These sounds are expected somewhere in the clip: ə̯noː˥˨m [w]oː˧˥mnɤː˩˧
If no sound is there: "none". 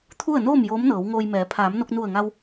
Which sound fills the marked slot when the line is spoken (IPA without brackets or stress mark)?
j